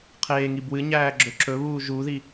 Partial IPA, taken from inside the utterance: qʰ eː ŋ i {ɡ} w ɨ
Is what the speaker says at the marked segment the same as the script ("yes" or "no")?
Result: no